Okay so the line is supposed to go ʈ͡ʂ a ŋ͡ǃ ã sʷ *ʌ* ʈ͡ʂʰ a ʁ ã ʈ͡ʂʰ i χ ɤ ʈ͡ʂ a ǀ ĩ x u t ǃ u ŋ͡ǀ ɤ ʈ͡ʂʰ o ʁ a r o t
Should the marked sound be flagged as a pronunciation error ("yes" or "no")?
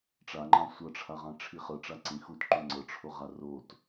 no